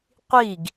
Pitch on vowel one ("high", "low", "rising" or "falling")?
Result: falling